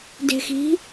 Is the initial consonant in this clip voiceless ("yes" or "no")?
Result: no